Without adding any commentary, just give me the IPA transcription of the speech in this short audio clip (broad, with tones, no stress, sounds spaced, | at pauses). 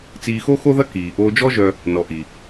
t͡s iː˧ x o˥ x o˥ ð ɐ˥ k iː˩ ʔ oː˧ d͡ʒ ɔ˥ ʒ œ˧ | n ɔ˩ ʔ i˩